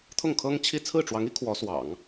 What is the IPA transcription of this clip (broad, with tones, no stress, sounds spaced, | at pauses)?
t̪ʰ ʊ˥˩ ŋ kʰ ɤ˥ ŋ t͡ɕʰ i˥˧ t͡sʰ ɹ̩˥˩ ʈ͡ʂ w ɑ˧˥ ŋ i˧˥ kʰ w ɔ˧˥ s w ɑ̰˨˩˦ ŋ